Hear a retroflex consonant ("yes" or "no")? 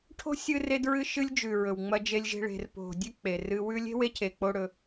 yes